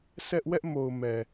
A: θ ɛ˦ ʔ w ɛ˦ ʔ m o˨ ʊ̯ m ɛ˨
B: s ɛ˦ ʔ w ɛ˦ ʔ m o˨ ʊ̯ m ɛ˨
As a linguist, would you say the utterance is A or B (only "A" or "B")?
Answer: B